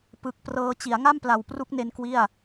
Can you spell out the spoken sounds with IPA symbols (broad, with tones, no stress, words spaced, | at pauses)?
pɯ˨˩k̚prɤː˧ t͡ɕi˩˦a̯ ŋa˥˩mpla˨˩wpru˦˥k̚ne˧n kwi˥˩a̯